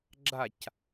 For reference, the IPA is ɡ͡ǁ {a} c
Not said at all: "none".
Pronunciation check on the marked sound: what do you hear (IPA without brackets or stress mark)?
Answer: a